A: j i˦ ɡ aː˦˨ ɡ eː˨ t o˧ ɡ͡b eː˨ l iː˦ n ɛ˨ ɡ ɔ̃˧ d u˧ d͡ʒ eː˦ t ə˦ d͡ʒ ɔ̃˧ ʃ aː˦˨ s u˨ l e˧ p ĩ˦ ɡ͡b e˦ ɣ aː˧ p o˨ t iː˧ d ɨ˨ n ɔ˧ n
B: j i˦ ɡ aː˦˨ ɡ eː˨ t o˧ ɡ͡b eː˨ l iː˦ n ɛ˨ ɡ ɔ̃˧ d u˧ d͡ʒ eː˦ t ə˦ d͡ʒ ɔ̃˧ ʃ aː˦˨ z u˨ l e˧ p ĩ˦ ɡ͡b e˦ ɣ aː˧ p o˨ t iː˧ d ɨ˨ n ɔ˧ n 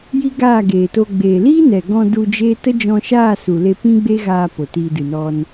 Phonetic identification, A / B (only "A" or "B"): A